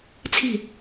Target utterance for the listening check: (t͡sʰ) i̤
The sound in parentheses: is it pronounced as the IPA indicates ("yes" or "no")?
yes